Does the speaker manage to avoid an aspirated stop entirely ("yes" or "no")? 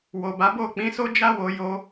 yes